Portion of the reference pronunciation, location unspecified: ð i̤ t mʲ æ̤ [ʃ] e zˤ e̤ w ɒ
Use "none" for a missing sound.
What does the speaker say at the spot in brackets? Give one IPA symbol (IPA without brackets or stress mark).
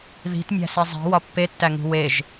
s